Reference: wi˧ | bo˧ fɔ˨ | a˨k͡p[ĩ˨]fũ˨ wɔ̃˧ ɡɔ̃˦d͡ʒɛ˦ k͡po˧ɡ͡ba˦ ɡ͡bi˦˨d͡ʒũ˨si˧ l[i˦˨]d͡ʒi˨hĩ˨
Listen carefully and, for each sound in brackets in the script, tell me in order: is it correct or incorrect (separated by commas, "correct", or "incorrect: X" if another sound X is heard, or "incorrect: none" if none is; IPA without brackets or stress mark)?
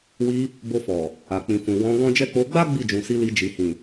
correct, incorrect: i˧